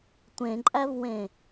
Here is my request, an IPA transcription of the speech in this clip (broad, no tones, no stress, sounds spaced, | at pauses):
tʷ ẽ ǃʼ æ v w ẽ